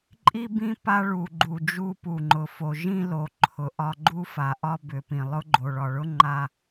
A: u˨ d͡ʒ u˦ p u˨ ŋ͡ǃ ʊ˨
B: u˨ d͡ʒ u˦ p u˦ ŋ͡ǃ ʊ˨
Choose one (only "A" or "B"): A